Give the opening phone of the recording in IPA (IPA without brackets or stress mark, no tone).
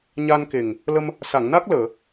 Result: ɲ